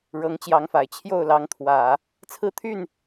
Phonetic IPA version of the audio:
ɻ ɤ˧˥ ŋ t͡ɕ j ɑ˧˥ ŋ f a˨˩ ɪ̯ t͡ɕʰ j o˥˩ ʊ̯ l ɑ˧˥ ŋ t̪ʰ w ä˨˩˦ | t͡sʰ ɹ̩˥˧ t̪ʰ y˥˩ n

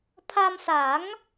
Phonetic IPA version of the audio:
pʰ a˧ m s a˩˦ ŋ

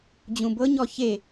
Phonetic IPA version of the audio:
d͡ʑ ũ b ɤ ɲ ɔ ç e

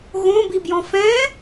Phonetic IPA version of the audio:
ɣ õ b i b j ɔ̃ f ɛ̃

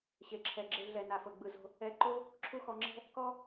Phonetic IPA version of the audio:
ɕ e˨ ǁʰ ɛ˨ ɡ͡ǁ e˧ ɮ ɛ˨ n a˨ f ɤ˨ ɡ͡b ɯ˨ z o̤˧ | ɛ˧ ǃ o˦ | ǁʰ u˦ x ɔ˧ ŋ͡ǁ ɛ̤˦ | k ɔ˦

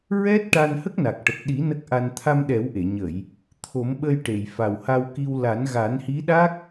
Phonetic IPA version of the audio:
ɹ ɛ˦˥ t̚ ʈ a˧ n h ə˦˥ k̚ n a˨˩ k̚ ʈ ə˨˩ k̚ ɗ i˨˩˦ n ə˦˥ k̚ ʔ a˧ n t̪ʰ a˧ m ɗ ɛ˨˩˦ w ʔ e˨˩˨ ɲ ə˨˩˨ j | t̪ʰ o˨˩˦ m ɓ ə˧ j ʈ e˨˩˨ j f a˨˩ w h a˧ w k i˧ w l a˨˩˦ n ɣ a˨˩˦ n h i˧˥ ɗ a˦˥ k̚

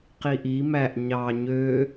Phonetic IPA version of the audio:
q i ʔ i m æ ʔ ɲ ɑ ɲ ø

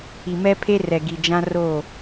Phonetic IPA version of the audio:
i˨ m ɛ˦ pʰ e˦ r ɛ˨ ɡ i˨ d͡ʒ ã˦ r oː˦˨

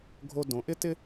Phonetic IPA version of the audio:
ɡʱ o˧ d õ˩˧ ʔ ɪ˥ t ɪ˥

